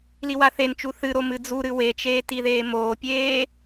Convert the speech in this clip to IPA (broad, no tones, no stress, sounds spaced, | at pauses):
l i w a θ e n t͡ʃ u θ ɨ ɾ o m ɨ d͡z u ɾ ɨ w e t͡ʃ eː t i ð eː m oː pʲ eː